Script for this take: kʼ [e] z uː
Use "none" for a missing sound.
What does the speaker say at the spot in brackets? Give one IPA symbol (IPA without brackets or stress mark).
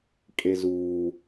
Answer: e